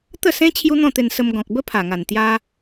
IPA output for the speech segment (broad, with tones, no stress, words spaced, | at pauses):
t̪ə˥˧sẽ˦ t͡ɕʰju˦n̪ɔ̃˥˧t̪e˧n sə˧m ɡɔ̃˨k̚bə˦pʰa˨˩ŋa˨˩n t̪ja˦